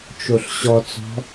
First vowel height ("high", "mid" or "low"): mid